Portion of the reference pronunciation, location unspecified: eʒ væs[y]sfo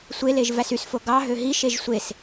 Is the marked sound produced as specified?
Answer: yes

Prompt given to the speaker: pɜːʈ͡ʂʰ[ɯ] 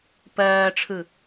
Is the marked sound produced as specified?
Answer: yes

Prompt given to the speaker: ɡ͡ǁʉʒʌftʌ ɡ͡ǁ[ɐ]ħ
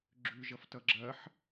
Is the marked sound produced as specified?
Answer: yes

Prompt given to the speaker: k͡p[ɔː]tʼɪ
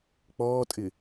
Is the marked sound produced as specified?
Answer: yes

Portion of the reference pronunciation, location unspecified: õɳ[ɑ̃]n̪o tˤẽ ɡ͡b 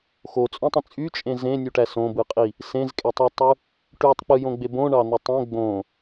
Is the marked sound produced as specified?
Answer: no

